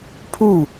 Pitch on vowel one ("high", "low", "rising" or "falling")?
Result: falling